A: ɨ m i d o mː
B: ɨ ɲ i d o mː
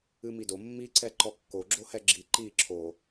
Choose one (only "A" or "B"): A